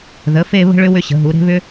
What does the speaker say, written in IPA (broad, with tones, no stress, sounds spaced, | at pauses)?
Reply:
ð ə˩˧ f e˥˧ β ə̤˥ ɭ ʏ˥ w ʏ˧ ɕ ə̤˩˧ ɦ u˩˧ ɾ e̤˥ β ʏ˥